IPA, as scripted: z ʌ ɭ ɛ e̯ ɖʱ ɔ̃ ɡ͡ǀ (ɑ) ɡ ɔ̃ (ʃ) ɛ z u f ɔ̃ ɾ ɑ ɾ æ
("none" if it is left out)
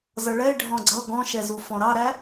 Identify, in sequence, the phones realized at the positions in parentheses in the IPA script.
ʌ, ʃ

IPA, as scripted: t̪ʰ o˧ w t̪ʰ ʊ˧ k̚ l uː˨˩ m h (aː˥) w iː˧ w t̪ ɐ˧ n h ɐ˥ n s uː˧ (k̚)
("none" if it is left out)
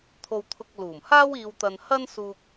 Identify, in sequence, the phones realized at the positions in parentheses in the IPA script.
aː˥, k̚

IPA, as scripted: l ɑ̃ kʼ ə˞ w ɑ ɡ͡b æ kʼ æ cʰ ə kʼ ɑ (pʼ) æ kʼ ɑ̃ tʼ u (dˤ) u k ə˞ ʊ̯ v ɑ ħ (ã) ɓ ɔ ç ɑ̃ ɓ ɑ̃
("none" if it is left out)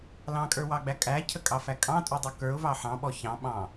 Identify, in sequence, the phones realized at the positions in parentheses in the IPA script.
f, dˤ, ɑ̃

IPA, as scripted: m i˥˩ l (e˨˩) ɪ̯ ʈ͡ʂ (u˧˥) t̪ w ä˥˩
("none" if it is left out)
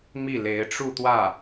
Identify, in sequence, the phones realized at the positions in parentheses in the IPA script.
e˧˥, u˥˧

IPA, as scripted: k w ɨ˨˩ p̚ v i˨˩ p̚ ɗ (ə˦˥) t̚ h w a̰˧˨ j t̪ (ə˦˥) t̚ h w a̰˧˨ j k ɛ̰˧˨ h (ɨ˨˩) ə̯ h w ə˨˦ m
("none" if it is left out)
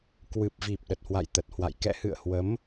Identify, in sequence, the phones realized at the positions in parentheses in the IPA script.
ə˨˩, ə˨˩, ɨ̰˧˨

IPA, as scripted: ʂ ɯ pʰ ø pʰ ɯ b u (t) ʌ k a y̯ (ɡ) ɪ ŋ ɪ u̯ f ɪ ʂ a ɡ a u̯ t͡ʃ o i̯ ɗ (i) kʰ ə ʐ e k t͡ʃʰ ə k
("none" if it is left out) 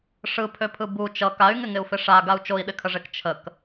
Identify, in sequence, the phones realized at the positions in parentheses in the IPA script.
t͡ʃ, ŋ, ɪ

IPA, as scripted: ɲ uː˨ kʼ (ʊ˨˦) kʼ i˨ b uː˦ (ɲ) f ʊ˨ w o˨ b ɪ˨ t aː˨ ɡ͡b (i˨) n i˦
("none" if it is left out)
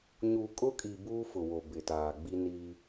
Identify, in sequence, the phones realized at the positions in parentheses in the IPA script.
ʊ˦, none, i˦

